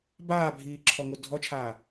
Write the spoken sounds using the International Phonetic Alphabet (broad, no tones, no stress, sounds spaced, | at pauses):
b aː bʱ iː ǁʰ ɔ ŋ o dʱ ɔ t͡ʃʰ aː